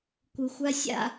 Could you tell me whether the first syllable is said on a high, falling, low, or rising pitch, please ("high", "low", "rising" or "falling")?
low